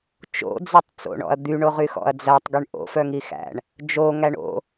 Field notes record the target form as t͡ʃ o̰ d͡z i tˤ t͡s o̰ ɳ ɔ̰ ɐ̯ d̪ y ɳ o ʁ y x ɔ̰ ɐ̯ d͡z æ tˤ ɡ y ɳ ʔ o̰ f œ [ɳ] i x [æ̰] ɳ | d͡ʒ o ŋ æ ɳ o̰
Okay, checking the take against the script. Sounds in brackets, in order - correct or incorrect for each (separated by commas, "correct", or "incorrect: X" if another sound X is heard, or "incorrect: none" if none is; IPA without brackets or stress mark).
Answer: incorrect: ŋ, correct